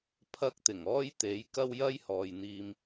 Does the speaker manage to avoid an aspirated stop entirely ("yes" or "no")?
no